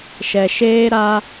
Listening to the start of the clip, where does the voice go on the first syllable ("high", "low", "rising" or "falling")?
low